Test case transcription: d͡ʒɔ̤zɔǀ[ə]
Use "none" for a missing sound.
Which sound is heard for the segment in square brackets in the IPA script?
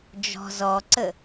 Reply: ə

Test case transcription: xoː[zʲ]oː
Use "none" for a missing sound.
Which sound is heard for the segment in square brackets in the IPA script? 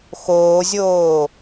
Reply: zʲ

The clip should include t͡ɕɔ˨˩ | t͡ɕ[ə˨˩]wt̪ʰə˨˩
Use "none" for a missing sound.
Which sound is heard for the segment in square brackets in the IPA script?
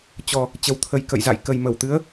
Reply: ə˨˩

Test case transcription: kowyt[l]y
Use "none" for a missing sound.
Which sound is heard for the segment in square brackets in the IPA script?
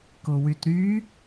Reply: ɾ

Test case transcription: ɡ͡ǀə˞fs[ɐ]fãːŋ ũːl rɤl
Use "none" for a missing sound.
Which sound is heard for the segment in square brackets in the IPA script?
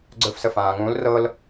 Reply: ə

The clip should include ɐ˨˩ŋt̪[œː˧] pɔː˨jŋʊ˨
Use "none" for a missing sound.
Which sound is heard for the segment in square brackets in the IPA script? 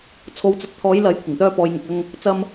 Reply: œː˧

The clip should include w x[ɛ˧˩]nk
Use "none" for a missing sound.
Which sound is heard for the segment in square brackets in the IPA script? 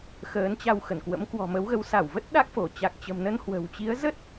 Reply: ə˧˩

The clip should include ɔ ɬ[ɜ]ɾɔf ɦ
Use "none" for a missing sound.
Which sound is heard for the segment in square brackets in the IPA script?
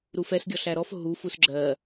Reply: æ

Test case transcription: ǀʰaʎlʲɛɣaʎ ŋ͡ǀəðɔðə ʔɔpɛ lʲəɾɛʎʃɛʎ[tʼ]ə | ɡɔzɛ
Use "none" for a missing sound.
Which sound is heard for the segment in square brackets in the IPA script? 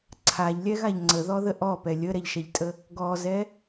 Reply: tʼ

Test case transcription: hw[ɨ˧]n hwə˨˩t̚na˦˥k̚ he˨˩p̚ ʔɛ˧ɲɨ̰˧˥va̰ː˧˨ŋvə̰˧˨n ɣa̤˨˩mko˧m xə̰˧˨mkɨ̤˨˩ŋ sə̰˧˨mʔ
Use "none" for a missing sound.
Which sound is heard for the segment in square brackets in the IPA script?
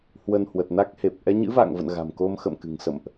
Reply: ə˧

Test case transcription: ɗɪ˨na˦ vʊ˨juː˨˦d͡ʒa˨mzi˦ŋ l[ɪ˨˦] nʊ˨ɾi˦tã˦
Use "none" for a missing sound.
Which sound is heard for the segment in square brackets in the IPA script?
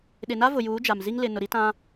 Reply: ɪ˨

